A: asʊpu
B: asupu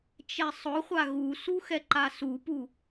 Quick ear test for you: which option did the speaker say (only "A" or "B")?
B